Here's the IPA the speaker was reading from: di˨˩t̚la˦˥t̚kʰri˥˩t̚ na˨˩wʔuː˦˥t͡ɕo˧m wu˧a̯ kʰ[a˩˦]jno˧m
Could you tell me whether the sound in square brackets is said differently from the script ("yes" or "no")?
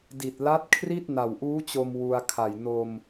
yes